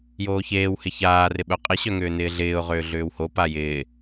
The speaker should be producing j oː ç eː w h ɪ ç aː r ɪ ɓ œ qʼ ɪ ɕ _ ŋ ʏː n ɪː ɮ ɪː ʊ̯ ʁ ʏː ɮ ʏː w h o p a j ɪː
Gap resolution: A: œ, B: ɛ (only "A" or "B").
A